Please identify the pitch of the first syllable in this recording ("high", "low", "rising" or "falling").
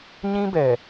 high